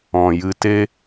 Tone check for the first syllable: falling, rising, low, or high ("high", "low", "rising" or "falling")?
low